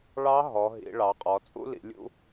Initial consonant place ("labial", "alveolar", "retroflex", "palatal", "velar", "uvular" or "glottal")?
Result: retroflex